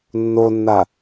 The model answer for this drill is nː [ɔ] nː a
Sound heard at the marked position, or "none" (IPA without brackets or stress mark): o